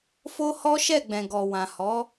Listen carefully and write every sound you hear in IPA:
f o˦ h ɔ˦ ʃ ɛ˦˨ ɡ͡b ɛ̃˨ ɡ ɔ˨ w ã˨ h ɔ˨˦

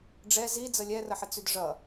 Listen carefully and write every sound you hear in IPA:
ɖ͡ʐ ɛ z i d͡z ə lʲ ɛ r ə ħ ə t͡s y d ʐ ʌ

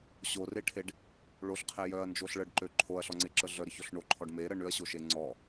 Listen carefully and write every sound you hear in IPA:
ɕ o r e ʈʰ e ɖ | ɭ o ɬ qʰ e j œ ɐ̯ n d͡ʒ o ɬ ɭ ə ɖ ǃ ø ǃʰ o ɐ̯ ɬ ɔ ŋ͡ǀ e ǁ ə ɮ œ ɾ ə ç ɔ ɬ ɳ o ǃʰ ɔ ɖ m e ɾ ə ɳ ʏ ɐ̯ ɕ o ʃ e ŋ͡ǀ ɔ

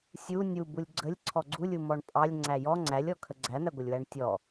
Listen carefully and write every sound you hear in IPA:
sʲ u nʲ u b u lʲ ɡ͡ǀ ə lʲ ǀʰ ɔ ɡ͡ǀ u lʲ u m ɔ ɳ pʼ ɑ lʲ ŋ͡ǀ æ j ɔ ŋ͡ǀ æ lʲ ɔ kʰ ə ɡ͡ǀ æ n̪ æ ɡʷ ə lʲ w æ ɳ tʲ ɔ

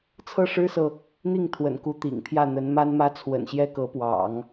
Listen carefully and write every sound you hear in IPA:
t͡sʰ ɤ˥˩ ʂ ɻ̩˥ s ɤ˨ | n̪ i˥˩ ŋ t̪ʰ w ə̰˨˩ n k u˧˥ t̪ ḭ˨˩ ŋ pʰ j ä˥˩ n̪ ə˧˥ n m a˥ n m ä˥ t͡sʰ w ə̰˨˩ n ɕ j ɛ˥ k ɤ˧˥ p w ɑ̰˨˩˦ ŋ

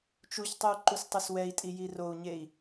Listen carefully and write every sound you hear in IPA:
t͡ʃ u ç tˤ ɯ u̯ ǃ u s tˤ ɯ s w ɛ i̯ tʼ i j i r o u̯ ɲ e i̯

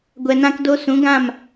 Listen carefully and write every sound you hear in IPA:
ɡʷ ɛ˨ n ã˧ k d o˧ s ũ˨˦ ɡ ã˦˨ m

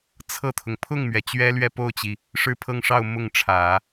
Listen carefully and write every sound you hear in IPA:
t͡sʰ ɤ˥˩ t̪ʰ ʊ˩ ŋ pʰ ʊ˥˩ ŋ m ɥ ɛ˩ t͡ɕ ɥ ɛ˥ l ɥ ɛ˥˧ p o˥˩ ʊ̯ t͡ɕ i˩ | ʂ ɻ̩˥˧ pʰ ɤ˥˧ ŋ ʂ ɑ˥˧ ʊ̯ m ʊ˥˩ ŋ ʈ͡ʂʰ ä˨˩˦

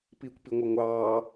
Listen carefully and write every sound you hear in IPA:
p iː kʷ p i ŋʷ ɤ ŋʷ ɑː

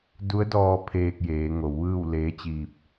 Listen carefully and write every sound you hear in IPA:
d u˧˥ ə̯ d ɔː˧ pʰ eː˧ k̚ j eː˩˧ ŋ o˩˧ w ʋ ɯː˥˨ w l eː˧˥ t͡ɕ iː˧ p̚

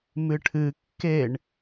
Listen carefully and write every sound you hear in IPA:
m ɨ ʈʰ ɨ kː e ɳ

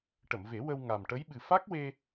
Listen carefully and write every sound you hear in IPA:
ʈ ə˨˩˨ m v e˨˩˦ w ə˧ w ŋ a˨˩ m ʈ ə˧˥ j ɓ ɨ˨˩ f a˦˥ k̚ w e˧

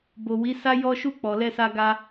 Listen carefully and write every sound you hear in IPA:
b o˨ w i˨˦ s a˦ j ɔ˧ ʃ u˧ k͡p ɔ˨ l ɛ˧ s a˧ ɡ a˧

